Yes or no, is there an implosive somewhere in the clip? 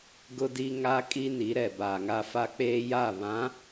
no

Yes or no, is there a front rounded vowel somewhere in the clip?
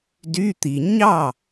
yes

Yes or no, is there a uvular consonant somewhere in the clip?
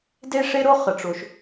yes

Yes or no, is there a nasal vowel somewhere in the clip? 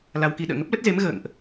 no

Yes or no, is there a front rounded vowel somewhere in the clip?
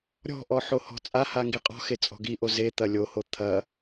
no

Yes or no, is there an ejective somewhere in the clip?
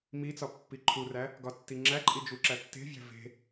yes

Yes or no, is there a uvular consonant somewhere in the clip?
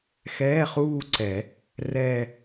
yes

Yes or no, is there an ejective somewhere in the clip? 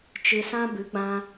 no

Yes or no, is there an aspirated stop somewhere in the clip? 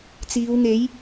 no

